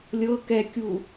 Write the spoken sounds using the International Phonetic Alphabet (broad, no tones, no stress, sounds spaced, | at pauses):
lʲ ɤ k ɛ kʲ u